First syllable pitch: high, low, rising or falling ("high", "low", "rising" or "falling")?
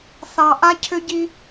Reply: low